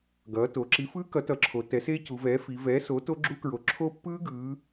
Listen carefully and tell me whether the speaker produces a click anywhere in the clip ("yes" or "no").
yes